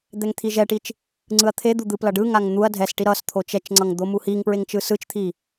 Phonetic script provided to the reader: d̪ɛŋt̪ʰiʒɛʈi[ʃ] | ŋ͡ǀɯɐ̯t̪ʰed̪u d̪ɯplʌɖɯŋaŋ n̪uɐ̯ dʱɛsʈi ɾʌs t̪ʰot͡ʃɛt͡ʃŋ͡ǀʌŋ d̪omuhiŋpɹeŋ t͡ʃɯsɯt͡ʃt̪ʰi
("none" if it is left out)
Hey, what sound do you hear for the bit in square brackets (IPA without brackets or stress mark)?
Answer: t͡ʃ